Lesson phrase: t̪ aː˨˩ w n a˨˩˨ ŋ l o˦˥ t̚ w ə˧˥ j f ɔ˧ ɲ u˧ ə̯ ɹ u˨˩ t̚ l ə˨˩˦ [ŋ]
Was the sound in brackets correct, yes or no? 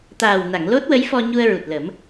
no